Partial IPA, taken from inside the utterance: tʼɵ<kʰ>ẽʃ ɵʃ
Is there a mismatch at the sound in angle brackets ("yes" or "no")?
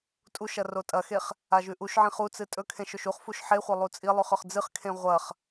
no